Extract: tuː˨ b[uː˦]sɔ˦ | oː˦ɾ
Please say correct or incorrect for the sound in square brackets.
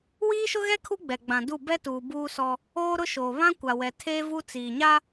correct